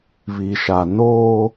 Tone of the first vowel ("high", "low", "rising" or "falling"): low